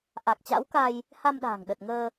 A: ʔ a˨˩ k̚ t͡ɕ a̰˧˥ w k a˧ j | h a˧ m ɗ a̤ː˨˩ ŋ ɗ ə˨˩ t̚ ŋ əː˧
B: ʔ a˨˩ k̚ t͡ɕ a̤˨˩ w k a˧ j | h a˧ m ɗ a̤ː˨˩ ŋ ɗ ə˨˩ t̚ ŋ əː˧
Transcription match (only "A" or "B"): A